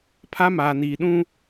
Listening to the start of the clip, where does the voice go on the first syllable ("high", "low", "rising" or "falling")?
high